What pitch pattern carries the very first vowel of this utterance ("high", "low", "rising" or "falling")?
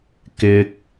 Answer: high